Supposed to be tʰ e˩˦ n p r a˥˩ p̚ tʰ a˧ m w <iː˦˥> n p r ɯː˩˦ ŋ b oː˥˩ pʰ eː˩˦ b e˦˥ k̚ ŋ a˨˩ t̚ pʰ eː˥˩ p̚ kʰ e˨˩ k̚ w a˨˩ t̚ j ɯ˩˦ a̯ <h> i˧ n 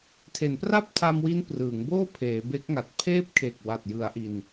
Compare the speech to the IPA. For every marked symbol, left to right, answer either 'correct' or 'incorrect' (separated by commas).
incorrect, incorrect